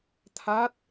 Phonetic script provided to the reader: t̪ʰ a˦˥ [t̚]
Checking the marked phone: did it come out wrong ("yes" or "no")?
no